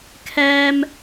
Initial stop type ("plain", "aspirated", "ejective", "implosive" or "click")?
aspirated